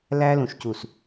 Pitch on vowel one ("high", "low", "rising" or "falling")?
high